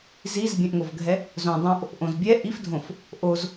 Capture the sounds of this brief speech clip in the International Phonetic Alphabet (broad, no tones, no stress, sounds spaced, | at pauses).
z i z bʲ ɛ̃ ʔ ŋ o v ɡʱ ɛ | z õ dˤ õ ʔ | ʔ õ z bʲ ɛ ʔ i f dʱ õ f | ʔ o z